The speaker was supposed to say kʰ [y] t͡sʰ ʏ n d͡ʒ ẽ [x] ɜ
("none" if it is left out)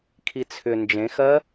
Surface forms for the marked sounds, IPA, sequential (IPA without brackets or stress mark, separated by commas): i, x